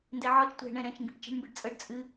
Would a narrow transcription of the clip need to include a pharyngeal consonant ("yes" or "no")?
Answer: yes